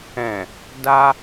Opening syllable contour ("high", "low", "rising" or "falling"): low